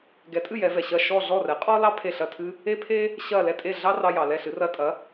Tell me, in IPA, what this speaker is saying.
ɡɛ˩˥tʼɨ˥˩ jɛ˩˥vɛ˩ ɕɐ˥˩ ʃɔ˥˩ ɮɔ˥˩rɛ˩˥qʼɔ˥lɑ˥ pʰe˥˩ɬɐ˥˩tʰɨ˥ | e˥pʰe˥ | ɕɐ˥˩ lɛ˥˩tʼe˥˩ɮɑ˥ rɑ˧jɑ˩lɛ˥˩ɬɨ˩˥ rɐ˧ tʼɐ˩˥

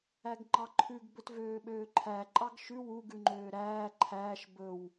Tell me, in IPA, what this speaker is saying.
æɡŋ͡ǃɑǃʰʉɡ bɵtvøːɓøːǃʰæ ǃʼɑɡʃʉ wu ɡʉŋ͡ǃøːɾæː ǃʰæːʃ bɵw

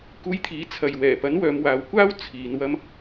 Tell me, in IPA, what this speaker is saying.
kuː˧jt̪ʰiː˨˥ t͡sʰɐ˨jwɛː˨˩pɐ˨˥n wœː˨˧mwaː˨˧wkʷaː˥w t͡sʰiː˨˧n wɐ˧m

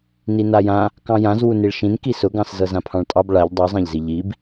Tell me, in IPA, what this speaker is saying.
ninajã | kɑ̃jãz wuniɭʃĩn kisʊɡɑ̃s zɤzãpʰɑ̃ɭtʼɑb ɭaʎ dˤuzˤãʎzi ʎib

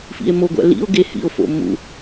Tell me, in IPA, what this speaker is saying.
fḭe̯moɡʷæ̰ lḭo̯ɡe hḭo̯fo̰ mṵ

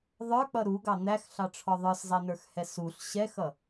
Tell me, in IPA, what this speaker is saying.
ðˤə˞k͡pʌ ɾuɡɑ n̪æxɬɑʈ͡ʂʰɔ ðˤə˞szˤɛnə˞xhɛ suɬ ɕɛxʌ

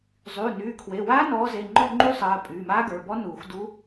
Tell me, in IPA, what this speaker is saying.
zˤyː˩˧˩nyː˩˧˩kʰwe˩˧˩waː˦˥ nɔː˨˦ze˩˧˩ŋ͡ǃɔ˦˨ ŋ͡ǃu˦˥sˤɜː˩˧˩ pʼyː˩˧˩maː˦˥ɡə˞˩˧˩bɔ˦˥ nuː˨˩˦xdu˦˥

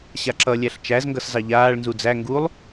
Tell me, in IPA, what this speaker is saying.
ɕaǁʌ lʲæɬt͡ʃæzŋɡʌs zɑʎaːɭnzu d͡zæ ŋɡulˠ

